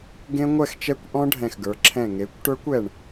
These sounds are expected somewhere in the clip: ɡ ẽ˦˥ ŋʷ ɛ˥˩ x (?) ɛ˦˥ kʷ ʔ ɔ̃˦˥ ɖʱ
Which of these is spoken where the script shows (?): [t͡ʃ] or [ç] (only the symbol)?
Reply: t͡ʃ